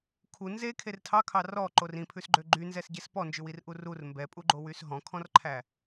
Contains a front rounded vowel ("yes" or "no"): yes